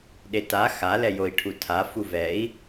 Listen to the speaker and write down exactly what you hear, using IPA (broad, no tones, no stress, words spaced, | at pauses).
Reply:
ɗeta xalɛjoi̯ ʈʰutʰa fuvɛi̯